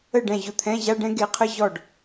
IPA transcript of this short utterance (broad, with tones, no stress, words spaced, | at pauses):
ə˥˩ ɖɛ̃˥˩ʑʊ˥˩t̪ʰɛ̃˧˥˧ ʑa˧˥˧ɖɛ̃˥ɡe˩˥qʰə˧˥˧ ʑɔ˥˩ɖ